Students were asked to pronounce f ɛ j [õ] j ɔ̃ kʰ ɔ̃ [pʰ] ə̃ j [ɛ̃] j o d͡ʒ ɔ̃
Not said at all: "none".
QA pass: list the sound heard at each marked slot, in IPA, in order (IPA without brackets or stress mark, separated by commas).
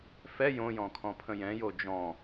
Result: õ, pʰ, ɛ̃